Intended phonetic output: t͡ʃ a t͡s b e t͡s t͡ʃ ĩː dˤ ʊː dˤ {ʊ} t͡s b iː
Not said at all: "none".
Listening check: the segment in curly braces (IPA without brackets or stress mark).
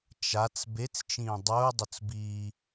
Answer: ʊ